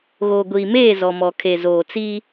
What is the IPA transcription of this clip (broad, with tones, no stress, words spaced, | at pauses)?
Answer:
ɣoː˨ɡʷiː˨meː˦˨ zɔ˨mɔ˨kʰe˨ zoː˨t͡siː˦